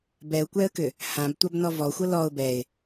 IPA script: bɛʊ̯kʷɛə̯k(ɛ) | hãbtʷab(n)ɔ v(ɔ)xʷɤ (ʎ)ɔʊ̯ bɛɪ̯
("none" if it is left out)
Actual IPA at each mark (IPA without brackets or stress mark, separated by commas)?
ʏ, n, ɔ, l